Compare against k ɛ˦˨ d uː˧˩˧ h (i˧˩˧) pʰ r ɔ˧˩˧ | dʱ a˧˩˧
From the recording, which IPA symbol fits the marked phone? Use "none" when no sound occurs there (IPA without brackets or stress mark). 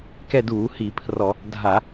i˧˩˧